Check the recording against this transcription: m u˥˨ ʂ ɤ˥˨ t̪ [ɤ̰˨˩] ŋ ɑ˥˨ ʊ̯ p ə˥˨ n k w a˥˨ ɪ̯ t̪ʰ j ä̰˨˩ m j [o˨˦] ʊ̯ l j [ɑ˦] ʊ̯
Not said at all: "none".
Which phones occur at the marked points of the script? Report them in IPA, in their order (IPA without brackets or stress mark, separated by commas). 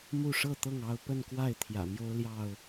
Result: ɤ˥˨, o˦, ɑ˥˨